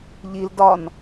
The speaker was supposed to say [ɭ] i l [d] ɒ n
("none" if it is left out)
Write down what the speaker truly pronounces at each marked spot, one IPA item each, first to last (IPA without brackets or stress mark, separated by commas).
ʎ, d